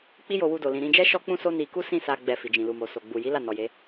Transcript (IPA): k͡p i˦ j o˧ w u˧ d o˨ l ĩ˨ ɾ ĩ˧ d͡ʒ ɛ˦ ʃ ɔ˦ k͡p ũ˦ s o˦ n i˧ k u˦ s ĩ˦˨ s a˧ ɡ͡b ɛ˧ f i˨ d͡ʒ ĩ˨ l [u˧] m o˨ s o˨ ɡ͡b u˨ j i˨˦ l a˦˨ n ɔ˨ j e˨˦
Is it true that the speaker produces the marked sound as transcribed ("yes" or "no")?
no